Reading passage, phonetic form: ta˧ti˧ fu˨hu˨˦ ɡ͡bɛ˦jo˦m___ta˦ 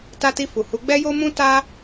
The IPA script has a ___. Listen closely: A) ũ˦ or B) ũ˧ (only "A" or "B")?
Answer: A